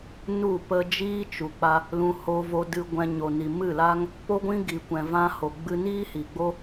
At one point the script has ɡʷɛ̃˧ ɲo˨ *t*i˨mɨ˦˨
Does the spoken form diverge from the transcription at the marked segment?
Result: yes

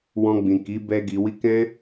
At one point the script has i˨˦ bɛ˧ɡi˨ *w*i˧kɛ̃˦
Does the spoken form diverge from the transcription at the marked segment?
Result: no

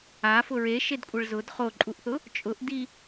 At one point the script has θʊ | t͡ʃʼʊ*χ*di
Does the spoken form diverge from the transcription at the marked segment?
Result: yes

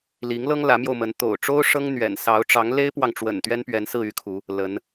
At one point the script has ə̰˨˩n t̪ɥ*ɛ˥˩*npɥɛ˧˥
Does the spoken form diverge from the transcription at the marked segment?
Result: yes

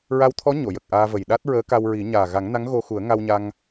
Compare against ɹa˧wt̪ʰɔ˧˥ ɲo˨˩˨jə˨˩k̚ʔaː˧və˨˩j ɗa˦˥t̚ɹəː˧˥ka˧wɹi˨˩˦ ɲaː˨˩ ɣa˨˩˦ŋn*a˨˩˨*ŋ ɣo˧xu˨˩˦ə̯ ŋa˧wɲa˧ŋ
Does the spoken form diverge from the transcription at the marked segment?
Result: yes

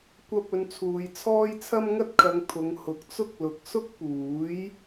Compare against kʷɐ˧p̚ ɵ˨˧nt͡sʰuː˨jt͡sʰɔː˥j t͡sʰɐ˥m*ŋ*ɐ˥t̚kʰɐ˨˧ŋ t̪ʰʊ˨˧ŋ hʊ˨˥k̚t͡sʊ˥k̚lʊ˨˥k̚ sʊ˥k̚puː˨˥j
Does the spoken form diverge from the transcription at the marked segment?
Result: no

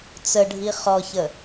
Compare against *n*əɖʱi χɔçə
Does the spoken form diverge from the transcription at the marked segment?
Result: yes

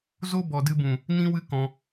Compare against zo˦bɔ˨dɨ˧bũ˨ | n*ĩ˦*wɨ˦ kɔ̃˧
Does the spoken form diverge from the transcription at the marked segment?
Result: no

